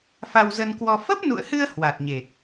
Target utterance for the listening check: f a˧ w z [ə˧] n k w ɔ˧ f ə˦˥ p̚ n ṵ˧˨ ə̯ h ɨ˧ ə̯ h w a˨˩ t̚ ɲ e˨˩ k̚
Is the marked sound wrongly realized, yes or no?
no